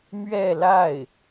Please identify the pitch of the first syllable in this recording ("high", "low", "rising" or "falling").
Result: falling